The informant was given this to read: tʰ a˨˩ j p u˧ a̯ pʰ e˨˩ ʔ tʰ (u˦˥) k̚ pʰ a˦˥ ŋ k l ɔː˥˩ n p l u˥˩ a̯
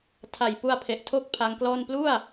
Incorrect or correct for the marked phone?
incorrect: o˦˥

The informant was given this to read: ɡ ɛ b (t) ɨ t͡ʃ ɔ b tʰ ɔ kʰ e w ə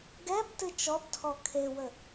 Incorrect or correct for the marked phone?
correct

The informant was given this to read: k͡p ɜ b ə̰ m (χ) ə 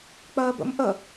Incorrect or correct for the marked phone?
incorrect: ʔ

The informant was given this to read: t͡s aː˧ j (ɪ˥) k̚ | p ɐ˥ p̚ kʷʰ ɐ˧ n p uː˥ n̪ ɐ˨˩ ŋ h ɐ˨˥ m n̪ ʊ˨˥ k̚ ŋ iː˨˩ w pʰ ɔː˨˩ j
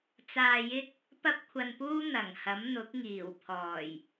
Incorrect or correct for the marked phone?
correct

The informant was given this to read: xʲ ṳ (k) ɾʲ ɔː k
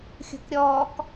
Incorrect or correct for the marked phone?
correct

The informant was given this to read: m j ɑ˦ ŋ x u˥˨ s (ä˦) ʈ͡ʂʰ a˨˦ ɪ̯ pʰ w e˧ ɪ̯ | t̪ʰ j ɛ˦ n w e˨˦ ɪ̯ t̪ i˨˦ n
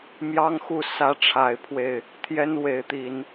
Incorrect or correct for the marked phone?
correct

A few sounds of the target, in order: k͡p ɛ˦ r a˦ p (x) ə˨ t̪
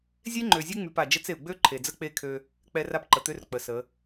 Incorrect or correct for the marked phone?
incorrect: ǃ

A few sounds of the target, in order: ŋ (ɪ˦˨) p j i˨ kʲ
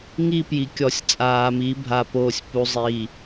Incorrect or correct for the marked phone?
incorrect: i˦˨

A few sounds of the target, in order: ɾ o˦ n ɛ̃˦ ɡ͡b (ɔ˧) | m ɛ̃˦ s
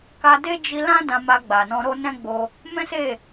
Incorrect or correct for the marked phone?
incorrect: o˧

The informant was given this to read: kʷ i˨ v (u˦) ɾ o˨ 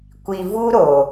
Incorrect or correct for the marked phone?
correct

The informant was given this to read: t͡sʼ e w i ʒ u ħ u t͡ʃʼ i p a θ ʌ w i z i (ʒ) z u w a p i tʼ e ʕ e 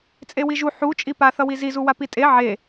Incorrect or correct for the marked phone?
incorrect: none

